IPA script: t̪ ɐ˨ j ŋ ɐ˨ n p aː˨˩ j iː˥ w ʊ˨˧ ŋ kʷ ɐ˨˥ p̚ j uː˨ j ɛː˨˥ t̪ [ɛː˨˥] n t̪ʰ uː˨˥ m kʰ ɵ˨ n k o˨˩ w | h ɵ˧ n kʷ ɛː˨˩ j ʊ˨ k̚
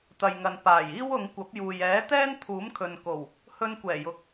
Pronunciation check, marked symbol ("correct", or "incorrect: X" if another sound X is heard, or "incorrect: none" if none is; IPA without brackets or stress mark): incorrect: ɛː˥